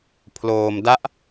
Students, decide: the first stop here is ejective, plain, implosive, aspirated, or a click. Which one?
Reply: aspirated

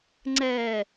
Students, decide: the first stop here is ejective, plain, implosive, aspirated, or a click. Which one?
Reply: click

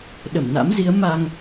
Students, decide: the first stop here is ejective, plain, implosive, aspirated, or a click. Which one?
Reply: implosive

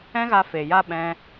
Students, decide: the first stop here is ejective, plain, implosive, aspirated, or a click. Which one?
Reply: implosive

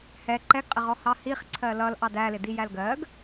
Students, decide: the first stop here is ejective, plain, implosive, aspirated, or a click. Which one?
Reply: click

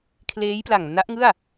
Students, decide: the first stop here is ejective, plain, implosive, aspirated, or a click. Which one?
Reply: aspirated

